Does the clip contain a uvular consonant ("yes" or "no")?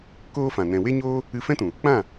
no